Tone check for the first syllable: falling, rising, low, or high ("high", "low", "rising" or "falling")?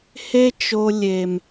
high